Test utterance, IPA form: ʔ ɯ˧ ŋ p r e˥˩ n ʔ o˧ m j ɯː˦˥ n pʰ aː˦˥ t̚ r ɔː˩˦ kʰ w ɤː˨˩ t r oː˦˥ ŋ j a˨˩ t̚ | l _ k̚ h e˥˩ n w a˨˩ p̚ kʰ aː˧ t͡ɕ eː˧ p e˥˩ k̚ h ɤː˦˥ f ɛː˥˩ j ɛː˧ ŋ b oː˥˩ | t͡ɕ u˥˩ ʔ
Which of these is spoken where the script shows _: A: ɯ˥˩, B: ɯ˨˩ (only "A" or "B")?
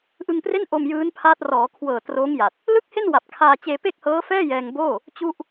A